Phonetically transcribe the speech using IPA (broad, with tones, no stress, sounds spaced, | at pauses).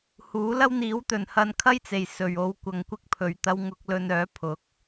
h uː˨˥ l ɐ˥ w n̪ iː˨˥ w t̪ ɵ˨ n h ɐ˧ n kʰ ɐ˥ j t͡s e˨ j s ɵ˨ ɥ o˧ w kʷ ɐ˧ ŋ kʷ ɪ˥ k̚ pʰ ɵ˨ ɥ t̪ ɐ˧ w ŋ ʊ˧ k̚ l ɵ˧ n œː˨˥ pʰ ʊ˨˥ k̚